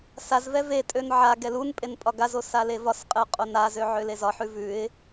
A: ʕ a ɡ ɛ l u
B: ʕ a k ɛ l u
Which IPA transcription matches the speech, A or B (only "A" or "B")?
A